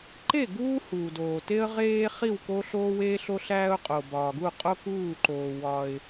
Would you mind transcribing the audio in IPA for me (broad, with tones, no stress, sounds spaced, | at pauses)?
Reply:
ǃ e˥˩ ɡ uː˦ h uː˩ d oː˩ t e˦ ə̯ ʁ eː˦ χ i˥˩ w k o˦ ɬ oː˦ w eː˦ ɬ o˦ ɬ æː˦ ʊ̯ qʼ o˩ b ɒː˩ ɡ u˥˩ qʼ o˦ k uː˥˩ ǃ oː˩ w ɒ˩ ɪ̯